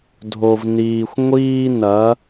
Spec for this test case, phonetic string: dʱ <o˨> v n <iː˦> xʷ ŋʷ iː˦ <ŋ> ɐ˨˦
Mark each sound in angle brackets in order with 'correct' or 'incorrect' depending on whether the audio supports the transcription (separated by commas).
correct, incorrect, incorrect